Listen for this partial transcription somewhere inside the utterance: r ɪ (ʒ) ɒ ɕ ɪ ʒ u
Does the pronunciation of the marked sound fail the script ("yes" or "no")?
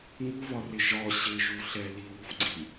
no